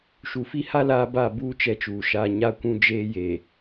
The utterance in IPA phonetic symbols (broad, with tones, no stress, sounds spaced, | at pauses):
ʃ u˨ f i˦ h a˦ l aː˦ b a˦˨ b uː˦ t͡ʃ ɛ˦ t͡ʃ uː˨ ʃ aː˦ ɲ a˦ kʷ ũ˦ d͡ʒ eː˦ j eː˨